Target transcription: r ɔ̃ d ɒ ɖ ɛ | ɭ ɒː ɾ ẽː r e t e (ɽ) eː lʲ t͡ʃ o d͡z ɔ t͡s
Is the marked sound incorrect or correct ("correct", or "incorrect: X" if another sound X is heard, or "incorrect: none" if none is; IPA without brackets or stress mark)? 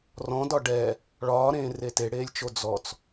correct